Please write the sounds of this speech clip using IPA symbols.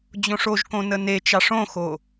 d͡ʑõʂoʒkõ nənet͡ʃɑʂ õxo

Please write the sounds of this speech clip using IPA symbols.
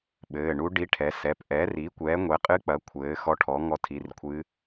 ɓɘː˩˧˩ɳu˧˥ ɖi˧˥ʈʰɛ˩˥sɛ˩˧˩p ʔɛː˩˥ri˩˥ kʷɛː˩˥ŋʷɛ˩˥ qʼɨ˧˥k͡pɐ˩˥ kʷʰɘː˩˥xɔ˧˥ʈʰɔ˩˥ ŋɔ˧˥tʰi˩˧˩rkʷʰɨ˧˥

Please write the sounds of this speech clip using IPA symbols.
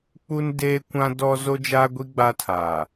k͡pu˦ndeː˦kʷã˦dɔ˦ zo˦d͡ʒaː˦ ɡʷi˦ ɡ͡ba˦tʰaː˨

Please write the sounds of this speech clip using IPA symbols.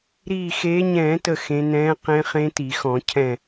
ɾiː˧˩xeː˨˦ɲɛ̃ː˧˩˧tə˧˩ xẽ˨˦ nɛ̃ː˨˦ qẽ˦˥χẽ˦˥ti˧˩˧xɔ̃˧˩˧ cʰɛ̃˧˩

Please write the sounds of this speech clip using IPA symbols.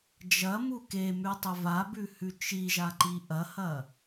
d͡ʒɐmu kemʉtˤɵ vabʉhʉ t͡ʃiʒaǃi ʔɐhɐ

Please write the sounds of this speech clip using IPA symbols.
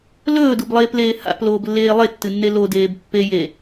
lɵːdublˠeːpleː ha̰ploːblːeː lˠetːɨnːe lodeːb pːe je

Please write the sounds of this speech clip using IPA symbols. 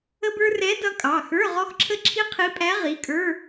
ə˥bə˞˥ rɛ˧˥ dʌ˧˥kʼɑ˩˧˩xə˞˧˥˧ ʁɔ˥xǁʰə˥ǁʰi˥ qʰi˧˥pʼæ˧˥ ʁi˩˧˩kʼə˞˧˥˧

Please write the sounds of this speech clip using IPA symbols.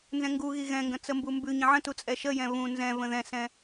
nzɛ̃ŋɡuɣi ɣɛ̃ŋɡə̃ t͡səmbumbʉɲə̃ ʕə̃tu t͡sʼɛʃəjɛ̃ βũ nzɛ̃və̃ ðɛ̃sɛ̃

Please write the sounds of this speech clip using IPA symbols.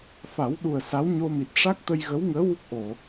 fa˨˩˦wɗu˨˩ə̯ sa˧˥w ɲo˧mi˨˩t̚ ʂa˦˥k̚t̪ə˧jɣə˧˥wŋəː˧˥ wu˦˥k̚ʔo˨˩˨

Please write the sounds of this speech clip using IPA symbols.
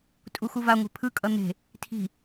tʼuxuvaŋʷe̤ pʰɯkʼʌ n̪e̤ | tʰi̤

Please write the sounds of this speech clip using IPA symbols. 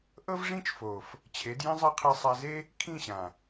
ʔɤ˦vʐĩ˦t͡ʃfo˨f | t͡ɕʰe˨˦djĩ˦zˤa˦ qʰi˧sˤa˧ ze˦ | kʰĩ˦˨ɕã˨

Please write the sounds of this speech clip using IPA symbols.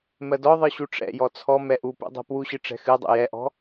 mɜdɔðˤɨ ɕuʈ͡ʂɛ̰jɔ t͡sʰɔ mɛʔupṵ dˤɛ̤pwuɕɨ ʈ͡ʂɛ̤xɨdˤṵ jɛʔɔ̤

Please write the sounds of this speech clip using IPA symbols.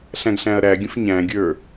ɬæ̃ɡɬæ̃ɐ̯ɾæɡʲə̃f ɲæ̃ɡʲə˞

